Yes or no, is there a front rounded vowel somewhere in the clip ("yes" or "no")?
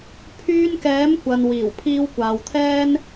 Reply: yes